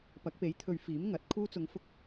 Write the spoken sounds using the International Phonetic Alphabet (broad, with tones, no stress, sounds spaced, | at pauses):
p ɐ˨˥ k̚ p e˨˥ j t̪ʰ ɵ˧ ɥ f iː˨˥ m ŋ ɐ˨˥ t̚ kʰ uː˥ t͡s ʊ˧ ŋ f ʊ˥ k̚